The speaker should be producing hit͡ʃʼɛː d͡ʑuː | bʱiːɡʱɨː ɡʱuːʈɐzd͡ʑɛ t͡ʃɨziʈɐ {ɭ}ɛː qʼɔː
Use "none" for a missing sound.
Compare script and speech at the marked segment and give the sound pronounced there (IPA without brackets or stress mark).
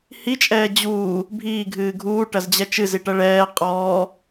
ɭ